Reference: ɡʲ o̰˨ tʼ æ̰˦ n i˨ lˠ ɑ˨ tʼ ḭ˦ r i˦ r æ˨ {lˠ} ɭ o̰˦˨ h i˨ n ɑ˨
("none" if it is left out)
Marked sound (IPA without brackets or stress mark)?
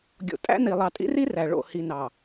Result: none